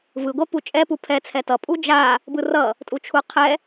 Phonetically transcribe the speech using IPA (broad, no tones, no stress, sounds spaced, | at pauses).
v ɯ ɡʷ ɛ p u t͡ʃʼ ɛ p u pʰ ɛ t͡sʰ ɛ t ʌ pʼ u d͡ʒ a | b ɯ r ʌ | tʼ u t͡ʃʰ u qʰ ɛ